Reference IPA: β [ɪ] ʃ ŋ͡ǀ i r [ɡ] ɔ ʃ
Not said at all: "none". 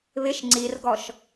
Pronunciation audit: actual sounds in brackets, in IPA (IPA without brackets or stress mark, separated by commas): ɪ, ɡ